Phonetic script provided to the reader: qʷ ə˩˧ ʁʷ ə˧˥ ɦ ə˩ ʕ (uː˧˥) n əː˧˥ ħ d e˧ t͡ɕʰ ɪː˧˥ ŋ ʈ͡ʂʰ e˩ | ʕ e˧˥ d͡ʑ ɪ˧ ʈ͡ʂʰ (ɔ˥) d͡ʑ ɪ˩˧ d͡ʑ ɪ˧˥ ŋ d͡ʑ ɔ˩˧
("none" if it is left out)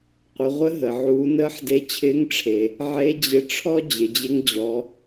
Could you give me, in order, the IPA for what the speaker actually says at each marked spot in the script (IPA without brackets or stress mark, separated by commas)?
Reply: uː˩˧, ɔ˥